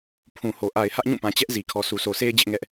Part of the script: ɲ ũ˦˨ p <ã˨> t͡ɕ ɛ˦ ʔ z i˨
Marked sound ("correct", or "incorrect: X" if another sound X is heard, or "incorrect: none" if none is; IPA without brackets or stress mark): correct